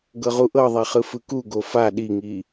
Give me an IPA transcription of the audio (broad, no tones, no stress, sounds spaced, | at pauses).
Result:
ɡ ɤ ʁ u ʔ ɤ ðˤ e χ ɯ f ɯ k u ɡ o f a ɗ i ŋ i